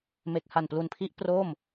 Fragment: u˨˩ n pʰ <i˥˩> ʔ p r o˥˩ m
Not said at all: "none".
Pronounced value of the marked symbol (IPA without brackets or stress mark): i˦˥